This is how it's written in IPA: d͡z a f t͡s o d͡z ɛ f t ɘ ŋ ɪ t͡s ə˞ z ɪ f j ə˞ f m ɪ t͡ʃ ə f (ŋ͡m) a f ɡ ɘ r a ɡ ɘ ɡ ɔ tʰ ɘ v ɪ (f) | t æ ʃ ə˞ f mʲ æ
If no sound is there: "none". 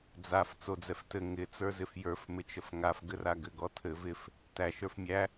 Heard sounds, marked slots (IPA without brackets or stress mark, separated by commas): ŋ, f